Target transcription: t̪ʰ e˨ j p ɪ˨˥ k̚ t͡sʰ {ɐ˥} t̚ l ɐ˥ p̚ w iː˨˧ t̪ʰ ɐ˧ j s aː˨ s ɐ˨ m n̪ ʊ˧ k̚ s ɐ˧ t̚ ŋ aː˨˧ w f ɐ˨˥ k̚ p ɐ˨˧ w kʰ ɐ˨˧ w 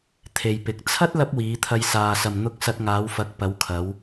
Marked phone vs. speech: correct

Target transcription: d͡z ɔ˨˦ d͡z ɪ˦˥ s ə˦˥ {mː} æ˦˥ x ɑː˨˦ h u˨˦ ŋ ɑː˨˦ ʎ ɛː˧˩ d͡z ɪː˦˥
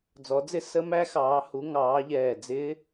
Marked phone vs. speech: incorrect: m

